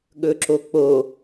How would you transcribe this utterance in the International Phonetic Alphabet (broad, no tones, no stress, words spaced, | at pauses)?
ɠɵǁok͡po